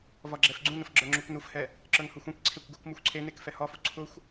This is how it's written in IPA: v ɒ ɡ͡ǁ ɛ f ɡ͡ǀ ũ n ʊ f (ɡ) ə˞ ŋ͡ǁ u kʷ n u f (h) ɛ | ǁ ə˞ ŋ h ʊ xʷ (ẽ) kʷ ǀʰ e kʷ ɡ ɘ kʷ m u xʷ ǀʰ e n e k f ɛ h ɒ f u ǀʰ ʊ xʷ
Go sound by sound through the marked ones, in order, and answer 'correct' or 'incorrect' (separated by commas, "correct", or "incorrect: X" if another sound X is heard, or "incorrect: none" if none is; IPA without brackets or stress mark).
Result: incorrect: ɡ͡ǁ, correct, correct